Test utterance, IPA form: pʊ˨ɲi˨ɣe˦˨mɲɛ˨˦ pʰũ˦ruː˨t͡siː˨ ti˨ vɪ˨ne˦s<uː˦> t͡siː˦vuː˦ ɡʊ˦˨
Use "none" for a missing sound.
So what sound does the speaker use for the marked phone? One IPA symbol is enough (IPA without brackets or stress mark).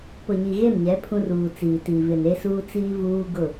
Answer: uː˦